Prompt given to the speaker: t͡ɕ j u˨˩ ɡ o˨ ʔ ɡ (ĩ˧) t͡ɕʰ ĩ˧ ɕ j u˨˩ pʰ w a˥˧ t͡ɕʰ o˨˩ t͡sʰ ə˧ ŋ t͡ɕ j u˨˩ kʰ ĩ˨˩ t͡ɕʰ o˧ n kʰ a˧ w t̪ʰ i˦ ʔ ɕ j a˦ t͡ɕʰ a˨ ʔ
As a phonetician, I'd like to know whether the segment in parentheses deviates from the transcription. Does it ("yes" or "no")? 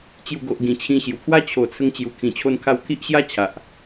yes